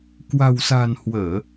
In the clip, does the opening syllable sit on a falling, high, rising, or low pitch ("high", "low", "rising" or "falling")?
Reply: low